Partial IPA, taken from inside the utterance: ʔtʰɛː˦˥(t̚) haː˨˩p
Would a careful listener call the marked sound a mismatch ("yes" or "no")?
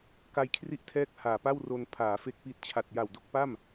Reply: yes